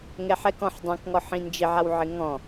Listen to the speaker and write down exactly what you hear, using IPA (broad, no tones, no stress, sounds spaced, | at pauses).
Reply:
ŋ ɛ ħ ɛ k ɔ̃ ħ dˤ ɛ̃ k ŋ ɔ ħ ĩ n d͡ʒ ɪ ʕ a w ʕ ɪ ŋ ɔ̃